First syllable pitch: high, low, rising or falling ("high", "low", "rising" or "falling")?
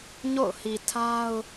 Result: falling